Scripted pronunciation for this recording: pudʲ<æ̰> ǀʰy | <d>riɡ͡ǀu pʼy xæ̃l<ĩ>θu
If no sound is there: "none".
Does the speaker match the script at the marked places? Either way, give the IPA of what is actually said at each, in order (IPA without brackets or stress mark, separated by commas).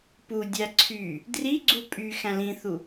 æ, d, ĩ